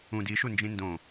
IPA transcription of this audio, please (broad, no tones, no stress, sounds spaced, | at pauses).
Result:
ũ d i ʃ u n d͡ʒ ĩ n d õ